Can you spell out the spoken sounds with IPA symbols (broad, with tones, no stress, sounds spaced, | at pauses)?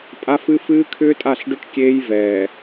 pʼ a˦ f ɨ˦ f ɨː˦ kʰ ʏː˦ tʼ a˦˨ ɬ ɖ ʏ˦ ʈ kʲ eː˦ j v ɛː˨